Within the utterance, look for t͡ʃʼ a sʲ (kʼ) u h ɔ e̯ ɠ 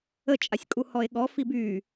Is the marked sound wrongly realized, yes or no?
no